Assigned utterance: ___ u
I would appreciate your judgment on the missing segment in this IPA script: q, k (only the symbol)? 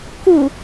k